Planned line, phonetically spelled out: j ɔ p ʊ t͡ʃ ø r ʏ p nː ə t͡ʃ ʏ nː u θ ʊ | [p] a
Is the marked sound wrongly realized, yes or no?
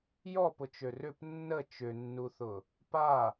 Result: no